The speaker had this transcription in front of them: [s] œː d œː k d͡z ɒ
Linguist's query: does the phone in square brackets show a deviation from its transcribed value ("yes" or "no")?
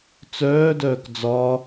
yes